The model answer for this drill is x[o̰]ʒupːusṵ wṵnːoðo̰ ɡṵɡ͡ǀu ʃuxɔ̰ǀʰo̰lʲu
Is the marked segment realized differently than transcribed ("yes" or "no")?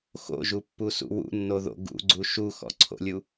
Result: no